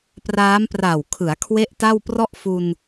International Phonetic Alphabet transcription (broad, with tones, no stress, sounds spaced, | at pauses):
p r aː˦˥ m p r a˨˩ w kʰ ɯ˩˦ a̯ kʰ w e˦˥ ʔ t a˥˩ w p r ɔ˥˩ ʔ f u˧ n